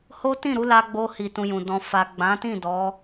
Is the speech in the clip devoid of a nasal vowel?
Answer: no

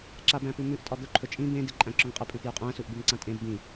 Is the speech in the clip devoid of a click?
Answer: no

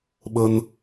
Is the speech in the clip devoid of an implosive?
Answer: no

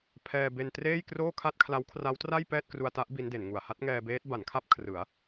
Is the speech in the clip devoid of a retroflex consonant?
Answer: yes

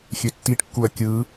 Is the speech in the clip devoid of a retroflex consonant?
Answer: no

